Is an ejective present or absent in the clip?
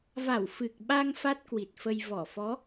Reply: absent